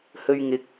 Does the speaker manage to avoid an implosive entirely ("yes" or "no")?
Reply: yes